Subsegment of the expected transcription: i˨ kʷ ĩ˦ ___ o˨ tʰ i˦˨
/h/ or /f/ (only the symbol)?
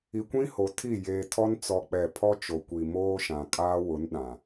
h